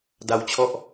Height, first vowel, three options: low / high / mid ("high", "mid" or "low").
low